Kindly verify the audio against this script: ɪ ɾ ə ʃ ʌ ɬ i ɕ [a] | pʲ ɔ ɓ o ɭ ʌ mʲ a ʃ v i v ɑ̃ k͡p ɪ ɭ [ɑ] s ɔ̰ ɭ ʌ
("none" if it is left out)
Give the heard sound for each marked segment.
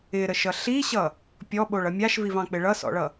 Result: ʌ, ʌ

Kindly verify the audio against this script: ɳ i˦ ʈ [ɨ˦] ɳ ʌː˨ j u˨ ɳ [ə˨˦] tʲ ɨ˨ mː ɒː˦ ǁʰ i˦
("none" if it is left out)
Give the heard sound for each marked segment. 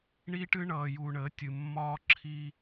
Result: ɨ˦, ə˨˦

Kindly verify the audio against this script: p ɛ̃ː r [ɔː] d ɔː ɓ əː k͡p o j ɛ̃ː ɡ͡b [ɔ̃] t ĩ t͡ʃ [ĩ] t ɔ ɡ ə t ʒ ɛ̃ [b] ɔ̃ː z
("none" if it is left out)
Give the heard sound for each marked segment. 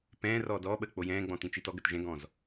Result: ɔː, ɔ̃, i, ɡ

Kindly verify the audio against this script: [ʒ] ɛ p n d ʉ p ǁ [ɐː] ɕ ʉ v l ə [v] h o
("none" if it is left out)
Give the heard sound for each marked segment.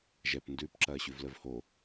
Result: ʒ, ɐː, v

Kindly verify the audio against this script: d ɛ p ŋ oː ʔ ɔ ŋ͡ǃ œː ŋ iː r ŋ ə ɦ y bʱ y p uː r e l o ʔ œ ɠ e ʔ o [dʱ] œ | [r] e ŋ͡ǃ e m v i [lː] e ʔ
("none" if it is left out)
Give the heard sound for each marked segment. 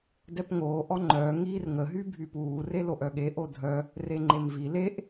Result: dʱ, r, l

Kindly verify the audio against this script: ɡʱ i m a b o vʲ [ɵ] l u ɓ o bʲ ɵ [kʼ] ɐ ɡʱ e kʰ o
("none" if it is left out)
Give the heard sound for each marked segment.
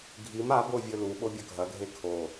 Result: ɵ, ɡʱ

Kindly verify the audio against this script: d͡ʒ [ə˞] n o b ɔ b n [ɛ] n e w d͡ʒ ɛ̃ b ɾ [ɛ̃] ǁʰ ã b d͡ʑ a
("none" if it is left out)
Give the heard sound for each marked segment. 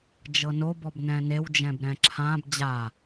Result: ɤ, ɛ̃, ɛ̃

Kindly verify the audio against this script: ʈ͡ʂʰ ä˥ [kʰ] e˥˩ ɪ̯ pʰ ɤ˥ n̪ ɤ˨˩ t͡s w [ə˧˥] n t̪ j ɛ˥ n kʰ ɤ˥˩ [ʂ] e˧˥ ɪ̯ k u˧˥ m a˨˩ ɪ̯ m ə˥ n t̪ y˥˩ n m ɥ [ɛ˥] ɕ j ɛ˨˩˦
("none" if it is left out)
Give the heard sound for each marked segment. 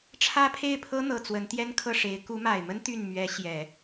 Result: pʰ, ə˧˥, ʂ, ɛ˧˥

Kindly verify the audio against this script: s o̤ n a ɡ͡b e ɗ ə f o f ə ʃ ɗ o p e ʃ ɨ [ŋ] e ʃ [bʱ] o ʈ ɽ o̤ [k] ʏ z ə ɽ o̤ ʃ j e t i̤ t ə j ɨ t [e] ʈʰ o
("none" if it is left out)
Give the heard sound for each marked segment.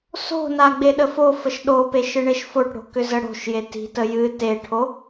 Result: ɳ, f, k, e

